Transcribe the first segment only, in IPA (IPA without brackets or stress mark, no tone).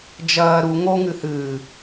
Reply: d͡ʒ